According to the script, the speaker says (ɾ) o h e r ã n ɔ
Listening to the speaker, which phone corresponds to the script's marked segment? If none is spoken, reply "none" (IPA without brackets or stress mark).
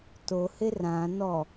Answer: t